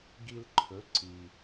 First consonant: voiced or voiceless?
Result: voiced